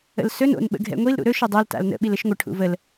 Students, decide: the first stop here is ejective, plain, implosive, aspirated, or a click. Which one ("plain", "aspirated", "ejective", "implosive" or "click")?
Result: implosive